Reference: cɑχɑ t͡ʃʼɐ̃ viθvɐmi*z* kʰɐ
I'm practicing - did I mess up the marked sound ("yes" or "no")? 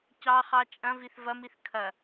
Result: yes